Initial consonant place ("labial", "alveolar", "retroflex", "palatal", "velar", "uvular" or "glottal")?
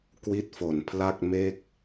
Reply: velar